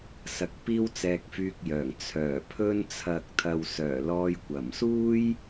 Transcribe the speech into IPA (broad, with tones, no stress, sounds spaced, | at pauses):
s ɐ˨ k̚ p iː˥ w t͡s ɛː˧ k̚ f yː˧ k̚ j œː˨˩ ŋ t͡sʰ œː˨˩ pʰ ɵ˧ n t͡sʰ ɐ˨ k̚ t̪ʰ ɐ˨ w s œː˨˩ l ɔː˧ j kʷ ɐ˨˩ m s uː˥ j